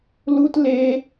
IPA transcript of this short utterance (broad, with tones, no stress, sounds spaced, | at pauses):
l u˦ t l e˦